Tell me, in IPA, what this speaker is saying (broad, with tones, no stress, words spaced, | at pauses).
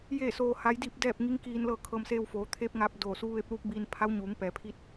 jeː˥˨soː˧ ha˧˥j diː˥˨p̚dɛː˥˨p̚ŋi˧˥ŋkiː˧n lɤː˥˨ kʰɤː˧mseː˧w foː˩˧t̪ʰeː˧˥p̚ŋaː˧p̚ doː˧˩su˧˥ ʋe˧˥p̚luː˧˥k̚biː˧n pʰa˧˥wɲuː˩˧ŋ pɛː˩˧pʰi˧˥t̚